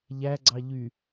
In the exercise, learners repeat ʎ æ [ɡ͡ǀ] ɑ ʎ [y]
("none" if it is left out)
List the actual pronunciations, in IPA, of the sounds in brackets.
ɡ͡ǀ, y

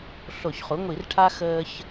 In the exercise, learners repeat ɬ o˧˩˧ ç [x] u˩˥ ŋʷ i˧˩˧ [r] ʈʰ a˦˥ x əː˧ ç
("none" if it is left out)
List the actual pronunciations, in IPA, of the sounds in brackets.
χ, r

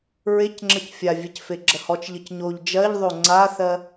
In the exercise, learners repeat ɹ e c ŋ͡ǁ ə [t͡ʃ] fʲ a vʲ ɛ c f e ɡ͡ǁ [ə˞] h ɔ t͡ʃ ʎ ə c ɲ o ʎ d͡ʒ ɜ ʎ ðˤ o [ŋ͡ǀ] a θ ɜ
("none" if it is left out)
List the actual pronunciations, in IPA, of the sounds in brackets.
c, ɜ, ŋ͡ǀ

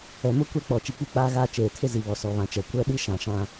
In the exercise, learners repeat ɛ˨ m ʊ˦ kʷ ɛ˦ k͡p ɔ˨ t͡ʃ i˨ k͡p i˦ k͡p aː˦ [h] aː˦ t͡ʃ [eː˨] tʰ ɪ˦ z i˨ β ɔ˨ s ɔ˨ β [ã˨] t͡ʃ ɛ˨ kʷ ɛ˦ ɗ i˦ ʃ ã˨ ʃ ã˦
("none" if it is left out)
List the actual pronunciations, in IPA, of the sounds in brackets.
ɣ, eː˨, ã˨

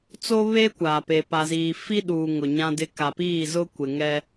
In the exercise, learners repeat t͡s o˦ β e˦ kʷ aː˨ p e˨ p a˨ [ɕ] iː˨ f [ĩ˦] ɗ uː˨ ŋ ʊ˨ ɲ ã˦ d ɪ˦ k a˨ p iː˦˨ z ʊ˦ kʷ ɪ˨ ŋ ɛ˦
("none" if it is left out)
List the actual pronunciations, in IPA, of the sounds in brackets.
z, i˦

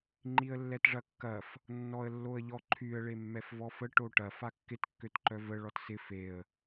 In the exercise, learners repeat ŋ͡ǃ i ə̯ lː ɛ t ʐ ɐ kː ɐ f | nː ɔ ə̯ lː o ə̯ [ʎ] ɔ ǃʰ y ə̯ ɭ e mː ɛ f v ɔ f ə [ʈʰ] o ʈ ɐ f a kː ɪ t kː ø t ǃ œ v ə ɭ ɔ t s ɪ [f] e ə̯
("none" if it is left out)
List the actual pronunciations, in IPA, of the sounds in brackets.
ʎ, ʈ, f

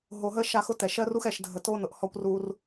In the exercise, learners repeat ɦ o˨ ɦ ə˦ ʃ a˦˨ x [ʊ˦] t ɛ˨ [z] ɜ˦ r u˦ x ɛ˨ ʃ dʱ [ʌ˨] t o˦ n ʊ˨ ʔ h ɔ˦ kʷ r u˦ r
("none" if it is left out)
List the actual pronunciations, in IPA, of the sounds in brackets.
ʊ˦, ʃ, ə˨

